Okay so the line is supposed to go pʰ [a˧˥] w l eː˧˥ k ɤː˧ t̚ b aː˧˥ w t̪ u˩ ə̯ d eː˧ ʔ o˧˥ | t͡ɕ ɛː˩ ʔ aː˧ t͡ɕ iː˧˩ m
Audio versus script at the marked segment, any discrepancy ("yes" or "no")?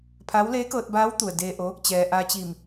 no